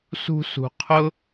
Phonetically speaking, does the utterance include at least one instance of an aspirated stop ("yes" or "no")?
yes